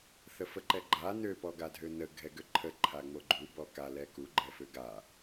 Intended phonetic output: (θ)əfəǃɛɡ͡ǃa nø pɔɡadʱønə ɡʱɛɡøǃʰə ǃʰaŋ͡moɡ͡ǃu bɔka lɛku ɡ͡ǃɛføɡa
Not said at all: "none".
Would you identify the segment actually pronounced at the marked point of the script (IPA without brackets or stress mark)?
θ